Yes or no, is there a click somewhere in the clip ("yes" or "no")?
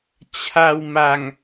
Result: no